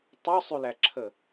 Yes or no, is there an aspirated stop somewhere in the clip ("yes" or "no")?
yes